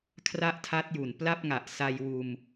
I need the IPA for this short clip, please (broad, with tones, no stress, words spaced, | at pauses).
kʰra˥˩ʔtʰa˦˥t̚ju˩˦n pla˥˩p̚ŋa˨˩ʔ sa˧jwuː˧m